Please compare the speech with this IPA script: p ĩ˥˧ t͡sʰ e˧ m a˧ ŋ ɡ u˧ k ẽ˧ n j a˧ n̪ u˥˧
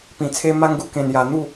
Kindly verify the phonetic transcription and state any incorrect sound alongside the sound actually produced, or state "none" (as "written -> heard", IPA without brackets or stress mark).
ĩ˥˧ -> ĩ˨˩